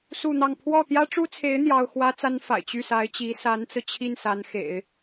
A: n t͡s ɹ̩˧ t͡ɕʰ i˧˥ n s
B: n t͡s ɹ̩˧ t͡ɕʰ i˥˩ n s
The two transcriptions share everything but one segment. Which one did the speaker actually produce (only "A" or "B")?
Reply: B